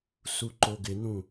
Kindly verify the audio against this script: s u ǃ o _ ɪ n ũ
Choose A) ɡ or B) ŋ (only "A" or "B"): A